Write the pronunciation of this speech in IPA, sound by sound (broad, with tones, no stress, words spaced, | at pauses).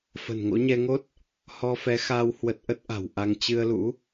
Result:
fə̤˨˩nŋo̰˧˥ɲɛ˧ŋo˦˥t̚ | hɔ˧fɛ˨˦xaː˧w hwə˦˥t̚ ʔə˦˥t̚ʔa̤˨˩wʔa˧ŋ t͡ɕɨ˧ə̯lṵ˧˥